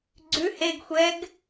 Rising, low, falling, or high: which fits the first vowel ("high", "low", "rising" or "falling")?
rising